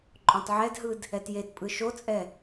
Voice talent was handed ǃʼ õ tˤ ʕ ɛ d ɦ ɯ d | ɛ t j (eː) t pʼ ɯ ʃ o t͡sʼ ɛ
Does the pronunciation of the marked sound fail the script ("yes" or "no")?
yes